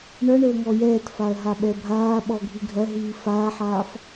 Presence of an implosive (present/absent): present